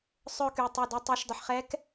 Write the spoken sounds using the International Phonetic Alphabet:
sˤœ˥˧ky˧˩tˤu˧˩ dɛ˧tˤa˧˥ʃdˤə˧ħ χɛ˧˥k

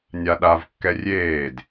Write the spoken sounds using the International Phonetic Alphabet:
nʲaɗav kːɛrʲeːd

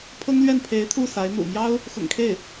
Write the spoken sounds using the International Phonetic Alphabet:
pʰɤ˥ŋlɥɛ˥˩npʰe˧˥ɪ̯ t̪ʰu˥˩ sa˧˥ɪ̯n̪ṵ˨˩ mjɑ˥ʊ̯ | xʊ̰˨˩ŋkʰe˥˩ɪ̯

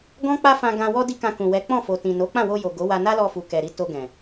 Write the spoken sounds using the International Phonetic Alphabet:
ɡɔ̃˦k͡pa˦fã˧ ɡã˧wɔ˦di˦kã˧ kũ˨ wɛ˨˦k͡pɔ̃˦˨fo˨ tĩ˨no˨˦k͡pã˦˨ wo˧jo˨ ɡo˨˦wa˧ na˦lɔ˧fu˨ kɛ˨ɾi˨˦ to˧ɡɛ̃˨

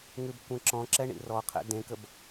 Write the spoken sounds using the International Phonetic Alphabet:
ŋʉbkʷẽǁɔ̃ǁɛ ɳḭrɔqʰɛ̰ dẽkəb

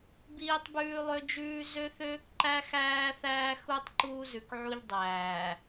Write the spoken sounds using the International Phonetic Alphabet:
biː˦tˤbʉː˦lˠø˦d͡ʒʉː˦ zø˦θøː˦kǃæ˦xæː˦ θæː˦xu˦tˤ ǃuː˦zʉ˨kʕu˦ʎ dˤæː˨

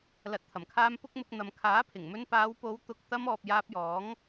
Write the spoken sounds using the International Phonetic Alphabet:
lɐ˨t̚t̪ʰɐ˨˩mkʰaː˧m pʊ˥k̚mʊ˧k̚ n̪ɐ˨mkʰaː˨˥pʰɪ˨˩ŋmɵ˧n paː˨˧wpo˨˧w t̪ʊ˧k̚ t̪ɐ˧mɔː˨p̚ jaː˧p̚jɔː˨˥ŋ

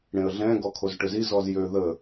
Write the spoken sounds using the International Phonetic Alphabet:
ɽẽə̯ɮɛ̃ ɡɔkʰozʈøzi zɔzjø ðə

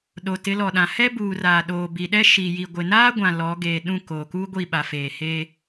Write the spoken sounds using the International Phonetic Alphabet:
ɗo˨ tɪ˨˦lɔ˨ɗã˨ hɛ˦ buː˨raː˨ɗoː˨ bi˨ɗɛ˦ʃi˨ji˨ ɡʷɪ˨naː˦ɡʷã˨ lɔ˨˦ ɡeː˨ ɗũ˦˨koː˨kuː˦ ɡʷi˦˨ɓa˨feː˨ he˦

